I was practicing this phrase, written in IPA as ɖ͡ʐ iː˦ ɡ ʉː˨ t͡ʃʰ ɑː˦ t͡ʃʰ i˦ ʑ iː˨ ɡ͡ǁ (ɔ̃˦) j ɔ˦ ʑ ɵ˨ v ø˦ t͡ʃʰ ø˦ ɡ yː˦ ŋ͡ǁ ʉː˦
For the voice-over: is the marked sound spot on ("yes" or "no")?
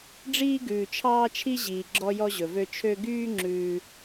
no